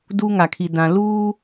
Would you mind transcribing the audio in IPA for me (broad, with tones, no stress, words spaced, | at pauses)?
duː˦ŋa˨kʰi˨ dã˨ luː˦